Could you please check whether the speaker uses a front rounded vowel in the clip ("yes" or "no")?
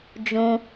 no